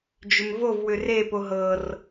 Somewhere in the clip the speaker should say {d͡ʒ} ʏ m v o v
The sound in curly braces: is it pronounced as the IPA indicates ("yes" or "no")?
yes